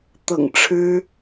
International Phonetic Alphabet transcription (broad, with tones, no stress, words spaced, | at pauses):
t̪ɤ̰˨˩ŋ ʈ͡ʂʰɻ̩˥